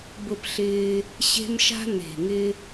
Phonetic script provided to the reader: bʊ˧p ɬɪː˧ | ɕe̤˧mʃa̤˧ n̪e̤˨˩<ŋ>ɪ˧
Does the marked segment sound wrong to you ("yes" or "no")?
no